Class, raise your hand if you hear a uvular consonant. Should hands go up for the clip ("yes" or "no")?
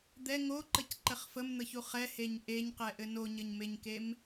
yes